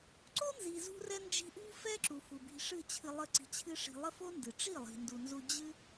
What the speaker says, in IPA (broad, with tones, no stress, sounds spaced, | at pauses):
ǀ o˦ n z i˨ z ṳ˧ r ɛ˧ n d͡ʒ i̤˧ ʔ ṳ˦ f ɛ˦ ǁ u˨ f u˨ b i̤˧ ʂ ɨ˦˨ t͡ɕʰ ɨ˧ lˠ ə˦˨ ǀ i̤˧ t͡ɕʰ ɨ˦ ʂ i̤˧ lˠ ə˦ f o˦ n d ɨ˨ ʈ͡ʂ i˦˨ lˠ i̤˨ n d u˧ n z u˦ d͡ʑ ɨ˦